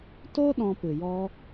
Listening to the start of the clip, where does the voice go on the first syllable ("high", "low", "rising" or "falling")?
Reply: high